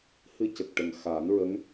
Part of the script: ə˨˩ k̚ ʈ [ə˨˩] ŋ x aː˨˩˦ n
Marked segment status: correct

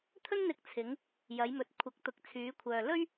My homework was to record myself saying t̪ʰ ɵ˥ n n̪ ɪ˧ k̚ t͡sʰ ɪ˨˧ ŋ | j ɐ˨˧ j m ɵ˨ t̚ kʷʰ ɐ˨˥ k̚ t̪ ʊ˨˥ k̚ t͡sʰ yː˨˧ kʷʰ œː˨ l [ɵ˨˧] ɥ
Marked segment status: incorrect: ɵ˥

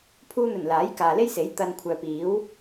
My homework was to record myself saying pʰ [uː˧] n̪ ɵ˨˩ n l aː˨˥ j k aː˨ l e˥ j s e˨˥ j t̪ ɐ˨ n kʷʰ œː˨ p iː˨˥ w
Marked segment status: correct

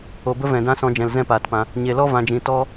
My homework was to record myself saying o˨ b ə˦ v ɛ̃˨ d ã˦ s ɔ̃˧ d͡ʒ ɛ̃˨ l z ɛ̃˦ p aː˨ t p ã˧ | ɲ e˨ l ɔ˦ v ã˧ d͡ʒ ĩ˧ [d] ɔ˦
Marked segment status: incorrect: t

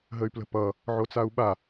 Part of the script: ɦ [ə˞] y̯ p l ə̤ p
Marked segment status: incorrect: ə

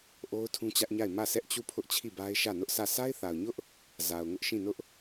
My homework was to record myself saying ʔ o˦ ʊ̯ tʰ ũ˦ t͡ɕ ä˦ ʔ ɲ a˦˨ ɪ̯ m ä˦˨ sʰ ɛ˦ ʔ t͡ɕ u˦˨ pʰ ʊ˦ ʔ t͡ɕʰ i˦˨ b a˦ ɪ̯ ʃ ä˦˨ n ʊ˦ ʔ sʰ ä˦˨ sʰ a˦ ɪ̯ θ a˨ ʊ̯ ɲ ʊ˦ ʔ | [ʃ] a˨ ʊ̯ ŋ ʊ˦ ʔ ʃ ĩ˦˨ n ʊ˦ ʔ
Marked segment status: incorrect: z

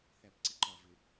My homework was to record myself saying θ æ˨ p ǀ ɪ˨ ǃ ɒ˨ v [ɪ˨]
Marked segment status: correct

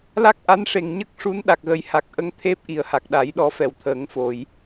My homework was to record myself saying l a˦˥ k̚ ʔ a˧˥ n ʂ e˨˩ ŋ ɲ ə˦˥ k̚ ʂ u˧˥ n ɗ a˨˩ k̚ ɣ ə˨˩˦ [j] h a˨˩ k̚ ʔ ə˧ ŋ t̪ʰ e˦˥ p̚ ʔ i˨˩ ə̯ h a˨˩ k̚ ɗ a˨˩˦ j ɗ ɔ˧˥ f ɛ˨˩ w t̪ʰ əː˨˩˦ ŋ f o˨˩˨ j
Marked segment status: correct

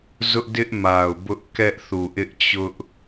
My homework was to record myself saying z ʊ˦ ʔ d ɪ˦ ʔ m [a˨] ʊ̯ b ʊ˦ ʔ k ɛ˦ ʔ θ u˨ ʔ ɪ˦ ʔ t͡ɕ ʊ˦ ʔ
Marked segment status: correct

